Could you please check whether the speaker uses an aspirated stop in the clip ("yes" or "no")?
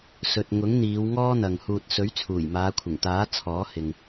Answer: yes